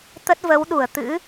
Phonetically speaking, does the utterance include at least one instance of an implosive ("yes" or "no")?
yes